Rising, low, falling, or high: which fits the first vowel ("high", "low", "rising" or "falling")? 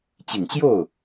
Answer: low